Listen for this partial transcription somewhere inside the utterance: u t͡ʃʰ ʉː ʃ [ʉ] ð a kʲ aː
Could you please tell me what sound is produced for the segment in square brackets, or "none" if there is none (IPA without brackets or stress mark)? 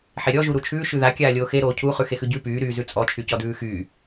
ʉ